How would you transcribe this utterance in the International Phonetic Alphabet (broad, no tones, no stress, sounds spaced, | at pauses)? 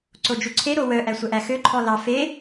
ǀ o d͡ʒ u ǀʰ e ɾ o w œ ʔ æ sʷ ɛ ʔ æ x ø ǃʰ ɔ l ɑ f e